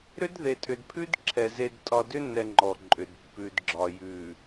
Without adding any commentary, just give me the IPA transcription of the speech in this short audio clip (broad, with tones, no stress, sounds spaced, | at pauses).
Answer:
ɾ ʏ˦ d ð e˨ tʼ ʏ˨ d pʰ ʉ˦ d ǁʰ ɛ˨ z e˨ d tʼ ɒ˨ d ʏ˦ nː ɛ˨ ŋ͡ǃ ɔ˨ ǃʼ ʏ˨ d pː ʉ˨ d ɡ͡ǁ ɒ˨ j ʉ˨